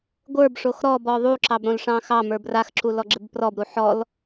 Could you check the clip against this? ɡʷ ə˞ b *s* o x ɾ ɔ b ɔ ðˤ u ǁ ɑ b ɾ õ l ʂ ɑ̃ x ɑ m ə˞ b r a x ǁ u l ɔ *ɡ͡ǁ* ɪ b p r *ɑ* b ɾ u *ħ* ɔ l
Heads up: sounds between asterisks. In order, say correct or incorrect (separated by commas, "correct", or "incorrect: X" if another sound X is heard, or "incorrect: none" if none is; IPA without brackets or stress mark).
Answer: incorrect: ʂ, correct, incorrect: ɔ, correct